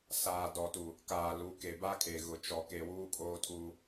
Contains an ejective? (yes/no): yes